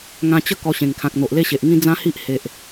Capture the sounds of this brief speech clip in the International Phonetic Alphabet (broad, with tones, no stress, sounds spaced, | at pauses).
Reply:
ŋ ã˧ t͡ɕ ə˥˧ k ɔ˧ ɕ ẽ˨˩ ŋ kʰ ã˨ k̚ n̪ o˨ ʔ l e˦ ɕ e˨ ʔ ŋ ĩ˦ d͡z ã˦ h i˦ ʔ h e˨ ʔ